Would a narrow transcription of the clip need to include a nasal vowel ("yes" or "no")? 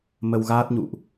no